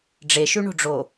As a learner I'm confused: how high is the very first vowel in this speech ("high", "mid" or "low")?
mid